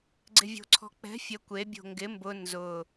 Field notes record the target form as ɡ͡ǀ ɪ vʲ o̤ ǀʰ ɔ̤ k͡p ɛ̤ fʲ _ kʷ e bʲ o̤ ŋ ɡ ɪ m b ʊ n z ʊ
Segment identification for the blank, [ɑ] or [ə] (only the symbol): ə